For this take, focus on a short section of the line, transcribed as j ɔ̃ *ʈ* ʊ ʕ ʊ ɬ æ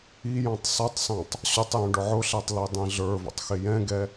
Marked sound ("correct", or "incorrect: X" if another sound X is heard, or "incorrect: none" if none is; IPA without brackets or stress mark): incorrect: ɖ